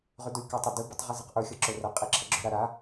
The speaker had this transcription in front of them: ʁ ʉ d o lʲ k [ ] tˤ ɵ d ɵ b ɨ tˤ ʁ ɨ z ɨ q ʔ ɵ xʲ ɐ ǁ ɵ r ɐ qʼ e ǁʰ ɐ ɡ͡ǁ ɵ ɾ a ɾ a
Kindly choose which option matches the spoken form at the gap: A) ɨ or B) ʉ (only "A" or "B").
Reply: B